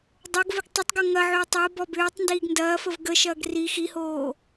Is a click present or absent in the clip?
absent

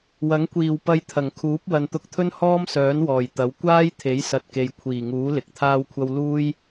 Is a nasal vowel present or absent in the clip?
absent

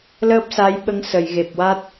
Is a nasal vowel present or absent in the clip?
absent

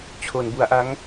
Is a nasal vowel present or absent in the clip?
absent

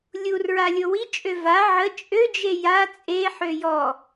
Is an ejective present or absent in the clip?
present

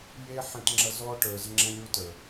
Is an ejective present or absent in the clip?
absent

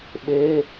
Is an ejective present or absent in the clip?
absent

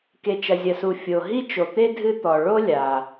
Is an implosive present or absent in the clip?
absent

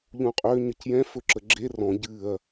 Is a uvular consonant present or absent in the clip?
present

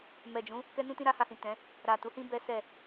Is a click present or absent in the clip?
absent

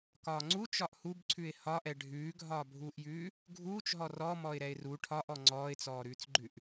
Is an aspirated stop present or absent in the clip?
present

